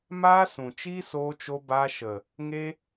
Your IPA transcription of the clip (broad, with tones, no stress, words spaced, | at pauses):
maː˦sũ˨ t͡ʃi˦soː˧t͡ʃo˧ ba˧ʃə˨ | ŋe˦